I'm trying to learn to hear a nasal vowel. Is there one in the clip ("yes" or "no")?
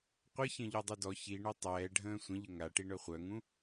yes